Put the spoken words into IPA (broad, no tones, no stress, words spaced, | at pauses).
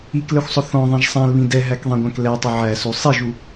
iklɛxʷsˤʊ θɔ̃ðˤɛ̃ʒ sˤæ̃lβĩ dɛɦækðˤɛ̃ɡʷæ̃k lɛtˤʊ ʕæsu sˤiʒu